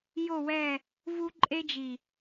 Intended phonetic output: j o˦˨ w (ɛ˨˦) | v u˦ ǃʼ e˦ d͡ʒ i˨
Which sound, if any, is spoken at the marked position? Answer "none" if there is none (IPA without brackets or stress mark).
ɛ˦˨